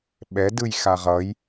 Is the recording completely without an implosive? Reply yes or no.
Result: no